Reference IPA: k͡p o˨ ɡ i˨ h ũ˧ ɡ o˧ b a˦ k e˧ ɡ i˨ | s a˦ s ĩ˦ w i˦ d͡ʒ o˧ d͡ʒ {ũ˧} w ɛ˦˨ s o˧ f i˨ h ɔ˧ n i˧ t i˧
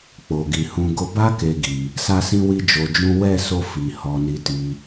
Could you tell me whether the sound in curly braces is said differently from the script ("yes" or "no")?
yes